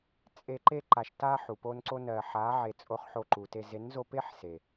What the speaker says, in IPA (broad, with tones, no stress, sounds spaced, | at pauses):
t͡sʼ e˧ ǃ e˧ ǃ a˨ ʃ t a˧ ħ u˨ p o˦ n ǀ o˦ n ɜ˨ ħ a˨˦ ʕ e˨ t͡sʼ o˧ χ ħ o˧ ǃ u˨ t e˧ z e˨˦ n z o˧ p e˦ ħ s e˨